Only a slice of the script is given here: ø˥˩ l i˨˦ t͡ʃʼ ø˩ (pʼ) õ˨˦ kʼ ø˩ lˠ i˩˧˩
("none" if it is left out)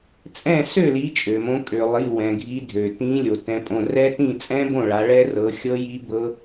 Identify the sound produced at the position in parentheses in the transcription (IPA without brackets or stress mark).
m